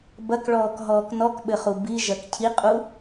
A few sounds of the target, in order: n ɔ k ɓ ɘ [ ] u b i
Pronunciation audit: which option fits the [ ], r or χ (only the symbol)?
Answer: χ